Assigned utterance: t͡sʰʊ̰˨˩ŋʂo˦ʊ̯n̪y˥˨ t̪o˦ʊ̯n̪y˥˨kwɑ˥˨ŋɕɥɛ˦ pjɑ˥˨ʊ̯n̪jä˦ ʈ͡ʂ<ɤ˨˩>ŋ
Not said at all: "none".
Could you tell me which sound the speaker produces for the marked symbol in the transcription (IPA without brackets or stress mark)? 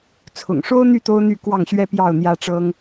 ɤ˦